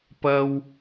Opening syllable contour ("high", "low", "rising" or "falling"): high